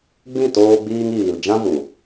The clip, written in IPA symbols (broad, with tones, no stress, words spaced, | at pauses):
ɡ͡bĩ˦˨toː˧ ɡ͡biː˧ŋiː˨l d͡ʒã˦vu˨